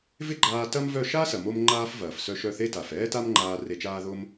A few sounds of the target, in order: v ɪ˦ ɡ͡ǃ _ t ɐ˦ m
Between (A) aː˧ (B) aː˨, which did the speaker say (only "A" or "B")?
A